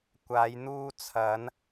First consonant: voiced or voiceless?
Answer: voiceless